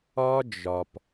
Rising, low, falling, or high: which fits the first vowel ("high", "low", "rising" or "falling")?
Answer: high